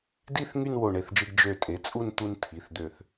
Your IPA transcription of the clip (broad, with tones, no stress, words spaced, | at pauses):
di˥˧θ ŋy˥˧nwo˧˩ɳe˧˩θd͡ʒɯ˧ɡ d͡ʒø˧˩ tʼe˩˥t͡sʼu˥˧n t̪u˧n tʰi˩˧˩θd̪ø˧˩θ